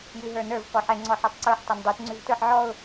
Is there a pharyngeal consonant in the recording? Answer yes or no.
yes